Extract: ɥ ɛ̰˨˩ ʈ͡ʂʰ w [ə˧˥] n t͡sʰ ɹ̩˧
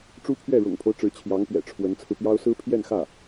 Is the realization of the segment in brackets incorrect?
no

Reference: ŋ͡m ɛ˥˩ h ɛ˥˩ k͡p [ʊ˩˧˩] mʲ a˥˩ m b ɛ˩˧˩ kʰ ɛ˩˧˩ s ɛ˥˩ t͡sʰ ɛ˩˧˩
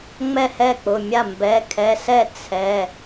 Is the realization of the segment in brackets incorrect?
no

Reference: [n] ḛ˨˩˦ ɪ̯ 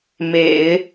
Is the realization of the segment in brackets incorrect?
yes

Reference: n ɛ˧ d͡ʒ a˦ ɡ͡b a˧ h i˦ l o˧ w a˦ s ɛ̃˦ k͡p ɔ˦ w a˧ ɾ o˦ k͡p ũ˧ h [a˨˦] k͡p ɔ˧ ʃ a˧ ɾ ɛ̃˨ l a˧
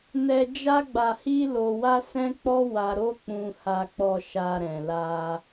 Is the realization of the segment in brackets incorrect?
yes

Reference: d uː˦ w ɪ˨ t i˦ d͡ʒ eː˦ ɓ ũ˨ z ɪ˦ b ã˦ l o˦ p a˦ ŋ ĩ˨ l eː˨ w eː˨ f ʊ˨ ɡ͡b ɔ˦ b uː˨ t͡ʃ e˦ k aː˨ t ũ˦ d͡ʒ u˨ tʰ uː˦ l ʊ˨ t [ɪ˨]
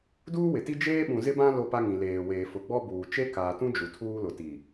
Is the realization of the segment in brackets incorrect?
yes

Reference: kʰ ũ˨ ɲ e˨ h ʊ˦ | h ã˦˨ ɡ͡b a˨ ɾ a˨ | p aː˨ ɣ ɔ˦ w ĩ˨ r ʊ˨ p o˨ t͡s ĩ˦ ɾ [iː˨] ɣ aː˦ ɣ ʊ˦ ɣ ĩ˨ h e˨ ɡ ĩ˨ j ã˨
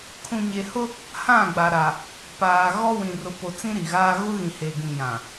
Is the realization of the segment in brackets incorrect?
yes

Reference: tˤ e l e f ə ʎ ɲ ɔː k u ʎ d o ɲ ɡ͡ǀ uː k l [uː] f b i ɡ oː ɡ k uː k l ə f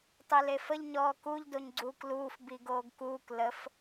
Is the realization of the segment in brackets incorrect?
no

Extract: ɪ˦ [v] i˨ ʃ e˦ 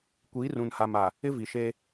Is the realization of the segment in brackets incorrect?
no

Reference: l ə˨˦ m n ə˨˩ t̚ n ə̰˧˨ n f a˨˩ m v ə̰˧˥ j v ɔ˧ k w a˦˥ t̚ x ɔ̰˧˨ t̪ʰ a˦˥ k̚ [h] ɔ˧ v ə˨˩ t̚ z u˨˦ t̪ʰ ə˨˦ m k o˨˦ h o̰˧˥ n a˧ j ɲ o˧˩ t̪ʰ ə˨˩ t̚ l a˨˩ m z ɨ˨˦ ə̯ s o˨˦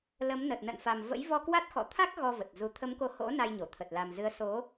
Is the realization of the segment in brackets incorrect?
yes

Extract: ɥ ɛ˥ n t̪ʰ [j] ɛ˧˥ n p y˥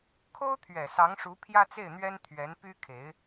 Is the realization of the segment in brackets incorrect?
yes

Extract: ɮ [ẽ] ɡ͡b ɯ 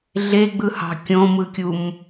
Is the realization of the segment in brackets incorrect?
yes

